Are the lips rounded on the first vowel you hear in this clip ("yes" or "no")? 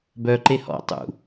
yes